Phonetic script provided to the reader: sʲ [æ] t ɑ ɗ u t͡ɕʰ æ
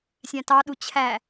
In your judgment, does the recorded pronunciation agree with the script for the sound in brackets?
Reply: no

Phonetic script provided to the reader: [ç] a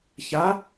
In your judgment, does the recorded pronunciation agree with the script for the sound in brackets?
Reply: yes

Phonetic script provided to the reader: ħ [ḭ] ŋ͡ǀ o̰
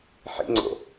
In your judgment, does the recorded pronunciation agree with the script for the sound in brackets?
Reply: yes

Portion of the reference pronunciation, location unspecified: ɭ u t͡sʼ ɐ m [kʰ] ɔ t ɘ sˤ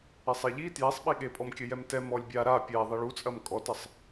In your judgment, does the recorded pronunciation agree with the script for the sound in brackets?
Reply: no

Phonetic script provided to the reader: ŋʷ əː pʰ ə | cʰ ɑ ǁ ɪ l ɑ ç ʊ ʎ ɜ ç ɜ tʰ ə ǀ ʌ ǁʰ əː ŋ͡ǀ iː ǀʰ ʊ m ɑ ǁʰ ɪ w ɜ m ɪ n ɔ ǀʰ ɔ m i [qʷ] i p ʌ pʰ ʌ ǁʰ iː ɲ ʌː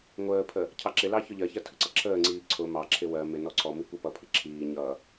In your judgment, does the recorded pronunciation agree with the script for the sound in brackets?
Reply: no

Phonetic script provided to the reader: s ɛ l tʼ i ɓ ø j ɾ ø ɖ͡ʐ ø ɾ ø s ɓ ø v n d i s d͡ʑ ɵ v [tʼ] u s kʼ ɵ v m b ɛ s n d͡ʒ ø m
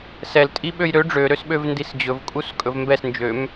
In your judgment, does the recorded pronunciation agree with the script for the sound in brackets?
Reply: no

